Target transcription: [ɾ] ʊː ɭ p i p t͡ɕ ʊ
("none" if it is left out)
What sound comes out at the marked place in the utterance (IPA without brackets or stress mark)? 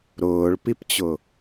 ɾ